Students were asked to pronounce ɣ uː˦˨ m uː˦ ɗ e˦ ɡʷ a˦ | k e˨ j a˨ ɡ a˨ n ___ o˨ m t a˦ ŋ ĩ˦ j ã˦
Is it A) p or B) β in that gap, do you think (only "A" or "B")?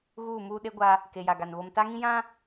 B